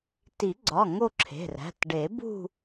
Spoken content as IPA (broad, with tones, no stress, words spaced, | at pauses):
ti˨˩˦ɡ͡ǀɒ˩˧˩ ŋo˥˧ǁʰe̤˩˧˩ræ̤˩˧˩t ɖe˨˩˦bṳ˥˧